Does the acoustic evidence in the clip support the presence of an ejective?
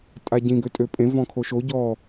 yes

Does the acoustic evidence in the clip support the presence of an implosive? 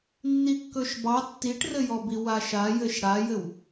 no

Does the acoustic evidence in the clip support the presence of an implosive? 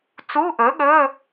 yes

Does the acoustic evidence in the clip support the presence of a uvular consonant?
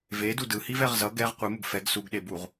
yes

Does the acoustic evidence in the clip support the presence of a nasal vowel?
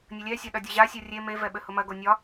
no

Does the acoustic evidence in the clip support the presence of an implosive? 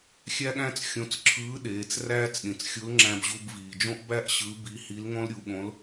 yes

